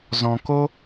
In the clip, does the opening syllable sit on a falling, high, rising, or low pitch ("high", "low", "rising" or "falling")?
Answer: low